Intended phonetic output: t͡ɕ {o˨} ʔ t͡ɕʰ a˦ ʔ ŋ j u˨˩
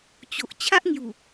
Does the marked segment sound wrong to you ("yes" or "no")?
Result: no